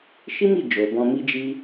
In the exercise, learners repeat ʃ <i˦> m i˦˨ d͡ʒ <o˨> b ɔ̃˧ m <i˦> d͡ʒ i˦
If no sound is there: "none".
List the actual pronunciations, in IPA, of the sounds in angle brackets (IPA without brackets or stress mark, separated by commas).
i˦, o˨, i˦